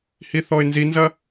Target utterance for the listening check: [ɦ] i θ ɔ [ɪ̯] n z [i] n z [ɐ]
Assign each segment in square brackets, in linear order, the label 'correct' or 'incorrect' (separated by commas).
incorrect, correct, correct, correct